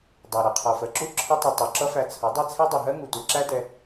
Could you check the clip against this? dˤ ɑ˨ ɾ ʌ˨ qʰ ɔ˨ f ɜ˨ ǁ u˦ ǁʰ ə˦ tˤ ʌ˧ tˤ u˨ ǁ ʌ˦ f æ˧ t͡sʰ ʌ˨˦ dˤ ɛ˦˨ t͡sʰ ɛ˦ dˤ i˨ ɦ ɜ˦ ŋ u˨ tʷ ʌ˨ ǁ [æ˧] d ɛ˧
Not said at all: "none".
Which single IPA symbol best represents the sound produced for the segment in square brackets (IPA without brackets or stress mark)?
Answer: æ˦